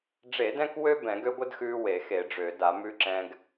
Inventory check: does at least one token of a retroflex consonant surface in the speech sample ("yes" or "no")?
yes